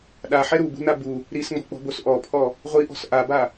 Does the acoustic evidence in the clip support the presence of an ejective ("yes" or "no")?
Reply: no